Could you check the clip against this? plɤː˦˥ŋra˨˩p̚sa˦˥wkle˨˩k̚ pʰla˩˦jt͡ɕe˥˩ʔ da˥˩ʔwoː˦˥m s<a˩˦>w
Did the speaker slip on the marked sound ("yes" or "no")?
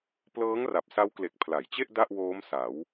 no